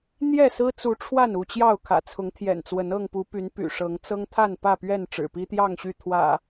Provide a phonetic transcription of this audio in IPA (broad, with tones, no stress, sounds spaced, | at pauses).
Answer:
n̪ j ɛ˥˨ s ɹ̩˦ t͡s u˨˦ ʈ͡ʂʰ w a˥˨ n u˥˨ t͡ɕ j ɑ˥˨ ʊ̯ kʰ ä̰˨˩ t͡sʰ ʊ˨˦ ŋ t̪ʰ j ɛ̰˨˩ n t͡s w ə˨˦ n ɤ˥˨ ŋ p u˨˦ p y˨˦ n p y̰˨˩ ʂ ɤ˨˦ ŋ t͡s ɤ˦ ŋ t̪ʰ a˥˨ n p ä˥˨ p ɥ ɛ˥˨ n ʈ͡ʂ ɻ̩˨˩ p i˦ t̪ j ɑ˥˨ ŋ ɕ y˥˨ t̪ʰ w ä̰˨˩